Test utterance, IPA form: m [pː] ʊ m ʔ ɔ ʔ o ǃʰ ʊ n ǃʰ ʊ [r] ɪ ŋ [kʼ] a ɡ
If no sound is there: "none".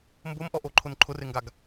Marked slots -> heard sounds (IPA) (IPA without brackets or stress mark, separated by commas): b, r, ɡ